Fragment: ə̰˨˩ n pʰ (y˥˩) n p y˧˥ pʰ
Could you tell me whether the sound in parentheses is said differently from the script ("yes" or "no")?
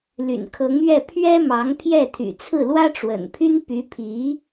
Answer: yes